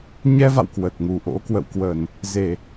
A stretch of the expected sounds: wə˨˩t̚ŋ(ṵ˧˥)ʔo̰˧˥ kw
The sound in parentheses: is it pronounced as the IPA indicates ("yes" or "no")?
no